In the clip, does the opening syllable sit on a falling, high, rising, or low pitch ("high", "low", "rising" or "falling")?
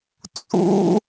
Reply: high